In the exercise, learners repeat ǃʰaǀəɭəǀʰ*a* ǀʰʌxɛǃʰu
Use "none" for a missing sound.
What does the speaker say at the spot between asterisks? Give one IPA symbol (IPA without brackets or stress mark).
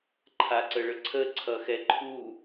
ə